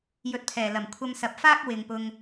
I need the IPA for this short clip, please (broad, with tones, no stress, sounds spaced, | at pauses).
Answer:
j ɵ˨˥ t̚ pʰ ɛː˨˩ l ɐ˨˩ m kʷʰ ɐ˧ m s ɐ˨˥ p̚ f aː˥ k̚ w ɪ˨ ŋ p ʊ˧ ŋ